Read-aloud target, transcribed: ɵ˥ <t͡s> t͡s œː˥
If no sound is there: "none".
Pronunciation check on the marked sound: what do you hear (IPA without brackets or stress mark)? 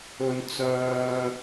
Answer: n